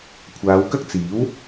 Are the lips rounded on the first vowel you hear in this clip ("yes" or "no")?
no